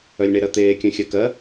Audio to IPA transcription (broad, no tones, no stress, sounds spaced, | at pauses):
œ lʲ ɳ e ɾ ɜ t̪ eː kʲ œ̃ xʲ ɜ k ɜ